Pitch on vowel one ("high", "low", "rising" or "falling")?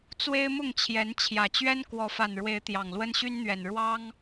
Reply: high